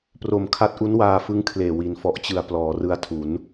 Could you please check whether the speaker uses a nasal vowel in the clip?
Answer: no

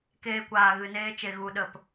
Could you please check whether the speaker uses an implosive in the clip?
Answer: yes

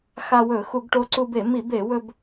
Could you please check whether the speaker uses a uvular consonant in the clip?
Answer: no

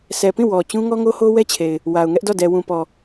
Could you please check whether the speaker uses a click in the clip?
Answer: no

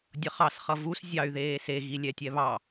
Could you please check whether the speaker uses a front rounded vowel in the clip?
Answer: yes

